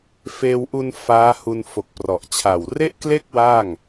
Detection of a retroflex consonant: absent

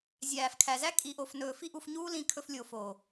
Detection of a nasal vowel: present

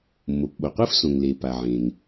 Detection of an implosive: present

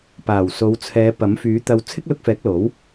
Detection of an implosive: absent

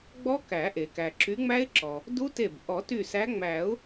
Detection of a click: present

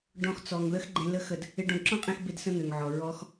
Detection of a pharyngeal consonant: present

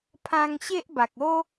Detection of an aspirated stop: present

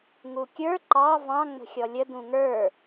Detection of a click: present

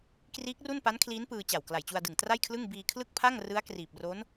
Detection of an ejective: absent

